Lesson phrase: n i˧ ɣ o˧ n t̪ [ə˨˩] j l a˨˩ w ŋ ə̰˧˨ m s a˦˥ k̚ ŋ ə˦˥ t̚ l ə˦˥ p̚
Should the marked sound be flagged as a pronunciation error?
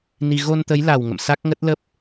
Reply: yes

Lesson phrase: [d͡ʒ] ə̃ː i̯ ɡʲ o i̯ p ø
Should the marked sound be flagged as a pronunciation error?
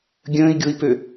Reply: yes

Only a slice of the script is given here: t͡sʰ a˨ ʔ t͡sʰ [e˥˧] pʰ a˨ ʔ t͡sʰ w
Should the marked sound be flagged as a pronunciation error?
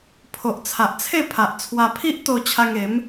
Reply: no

